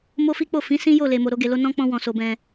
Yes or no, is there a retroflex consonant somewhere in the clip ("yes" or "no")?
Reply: no